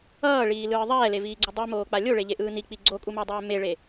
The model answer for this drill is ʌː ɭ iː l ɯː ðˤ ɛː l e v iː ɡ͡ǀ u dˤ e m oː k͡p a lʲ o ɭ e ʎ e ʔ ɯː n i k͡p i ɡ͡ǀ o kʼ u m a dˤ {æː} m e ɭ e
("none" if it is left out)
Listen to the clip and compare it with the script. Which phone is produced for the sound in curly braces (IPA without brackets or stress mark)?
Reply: ɛː